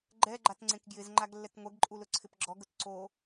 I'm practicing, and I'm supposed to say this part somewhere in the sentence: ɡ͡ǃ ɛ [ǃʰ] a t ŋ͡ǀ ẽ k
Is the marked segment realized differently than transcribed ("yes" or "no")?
yes